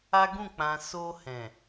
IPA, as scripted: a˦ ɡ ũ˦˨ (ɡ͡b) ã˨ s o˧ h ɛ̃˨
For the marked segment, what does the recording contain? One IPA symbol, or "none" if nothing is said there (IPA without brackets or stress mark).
k͡p